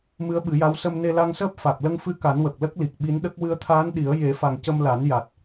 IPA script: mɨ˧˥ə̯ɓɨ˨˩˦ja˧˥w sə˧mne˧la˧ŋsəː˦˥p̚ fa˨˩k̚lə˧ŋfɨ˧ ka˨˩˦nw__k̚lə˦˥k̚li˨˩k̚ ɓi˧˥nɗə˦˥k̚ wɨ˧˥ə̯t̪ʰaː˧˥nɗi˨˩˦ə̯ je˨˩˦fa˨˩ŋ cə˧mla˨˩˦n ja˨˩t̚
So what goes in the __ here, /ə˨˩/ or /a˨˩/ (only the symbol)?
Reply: ə˨˩